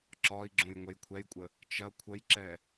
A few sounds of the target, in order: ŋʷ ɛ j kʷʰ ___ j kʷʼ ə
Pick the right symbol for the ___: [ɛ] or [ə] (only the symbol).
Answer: ɛ